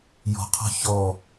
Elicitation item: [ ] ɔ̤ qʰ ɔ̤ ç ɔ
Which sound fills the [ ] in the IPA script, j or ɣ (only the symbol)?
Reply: j